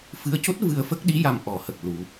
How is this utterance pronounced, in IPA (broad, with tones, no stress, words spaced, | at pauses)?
fɨ˧˥ə̯co˦˥t̚ vɨ˧ə̯fə˦˥k̚ɗi˧˥ ja˧mʔɔ˨˩˦hə˨˩k̚lu˨˩˦